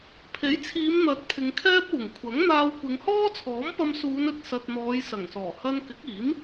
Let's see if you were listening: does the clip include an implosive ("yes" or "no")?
no